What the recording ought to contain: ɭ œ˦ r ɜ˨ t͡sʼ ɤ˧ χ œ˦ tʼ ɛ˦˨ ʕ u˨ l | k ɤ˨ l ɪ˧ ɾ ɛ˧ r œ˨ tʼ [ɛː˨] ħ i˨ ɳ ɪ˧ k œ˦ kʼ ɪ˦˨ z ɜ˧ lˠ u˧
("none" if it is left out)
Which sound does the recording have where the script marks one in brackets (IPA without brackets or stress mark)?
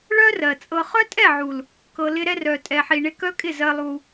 ɛ˨